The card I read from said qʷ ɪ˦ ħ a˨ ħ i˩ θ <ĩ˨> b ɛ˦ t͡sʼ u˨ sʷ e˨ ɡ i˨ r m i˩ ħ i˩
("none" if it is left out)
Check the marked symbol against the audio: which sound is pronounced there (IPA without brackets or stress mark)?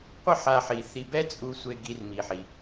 i˨